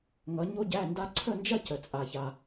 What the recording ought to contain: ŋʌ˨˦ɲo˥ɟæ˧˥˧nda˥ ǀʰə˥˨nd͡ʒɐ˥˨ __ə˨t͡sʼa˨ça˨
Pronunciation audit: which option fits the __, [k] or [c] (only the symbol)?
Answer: c